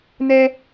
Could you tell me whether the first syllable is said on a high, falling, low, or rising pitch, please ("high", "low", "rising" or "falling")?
high